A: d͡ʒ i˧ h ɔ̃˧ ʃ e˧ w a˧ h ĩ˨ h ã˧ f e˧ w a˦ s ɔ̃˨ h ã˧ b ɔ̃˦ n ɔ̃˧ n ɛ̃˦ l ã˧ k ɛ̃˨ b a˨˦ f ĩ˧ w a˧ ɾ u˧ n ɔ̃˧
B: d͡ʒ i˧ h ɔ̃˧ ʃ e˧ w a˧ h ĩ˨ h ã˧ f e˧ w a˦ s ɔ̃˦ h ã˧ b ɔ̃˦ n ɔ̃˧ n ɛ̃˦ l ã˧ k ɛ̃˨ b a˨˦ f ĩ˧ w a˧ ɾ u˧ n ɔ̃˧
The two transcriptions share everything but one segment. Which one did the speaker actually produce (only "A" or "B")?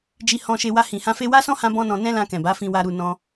B